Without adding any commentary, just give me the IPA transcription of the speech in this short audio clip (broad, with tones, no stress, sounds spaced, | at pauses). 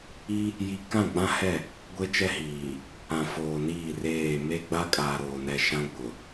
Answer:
i˦ | j i˨ k ã˦˨ ɡ͡b ã˦ h ɛ˦˨ | ɡʷ e˦ t͡ʃ ɛ˦ h iː˨ | ã˨ f oː˨ n iː˦˨ r eː˦˨ m e˦ ɡ͡b a˦ kʼ aː˨ ɾ oː˨ n ɛ˨ ʃ ã˦ ɡ͡b ʊ˨